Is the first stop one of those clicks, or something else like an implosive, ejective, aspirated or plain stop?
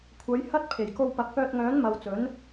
aspirated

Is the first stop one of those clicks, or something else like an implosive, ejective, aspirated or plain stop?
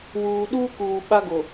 implosive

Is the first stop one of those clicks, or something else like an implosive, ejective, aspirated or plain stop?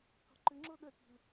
plain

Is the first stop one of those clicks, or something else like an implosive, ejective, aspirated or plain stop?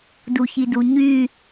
plain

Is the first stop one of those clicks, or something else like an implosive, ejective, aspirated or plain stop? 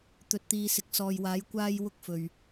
plain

